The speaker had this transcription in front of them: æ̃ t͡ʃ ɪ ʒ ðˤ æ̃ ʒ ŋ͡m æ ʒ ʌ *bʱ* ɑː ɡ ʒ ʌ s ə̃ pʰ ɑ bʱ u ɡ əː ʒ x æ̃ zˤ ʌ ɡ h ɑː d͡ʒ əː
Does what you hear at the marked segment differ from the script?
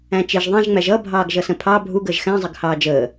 no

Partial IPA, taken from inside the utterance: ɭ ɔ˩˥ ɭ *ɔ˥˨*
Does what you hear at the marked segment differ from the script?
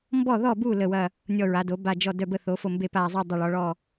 no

